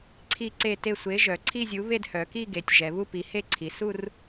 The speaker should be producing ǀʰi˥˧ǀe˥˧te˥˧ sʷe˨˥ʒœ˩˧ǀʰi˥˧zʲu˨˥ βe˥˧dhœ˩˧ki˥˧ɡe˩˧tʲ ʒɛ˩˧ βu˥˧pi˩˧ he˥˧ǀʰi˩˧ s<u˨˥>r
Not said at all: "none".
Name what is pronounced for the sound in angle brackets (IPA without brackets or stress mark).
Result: u˥˧